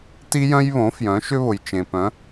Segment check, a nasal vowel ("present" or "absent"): present